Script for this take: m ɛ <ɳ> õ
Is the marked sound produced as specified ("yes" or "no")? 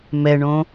yes